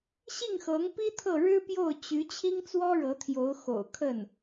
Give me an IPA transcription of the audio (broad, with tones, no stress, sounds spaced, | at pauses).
ɕ i˥˩ ŋ x ɤ˧˥ ŋ p i˥ t̪ʰ ɤ˥˩ ɻ ɻ̩˥ p j o˥˩ ʊ̯ t͡ɕ y˧˥ t͡ɕʰ i˥ ŋ t͡s w ɔ˥ ɻ ɤ˧˥ t̪ʰ j o˧˥ ʊ̯ x o̰˨˩ ʊ̯ kʰ ə˥˩ n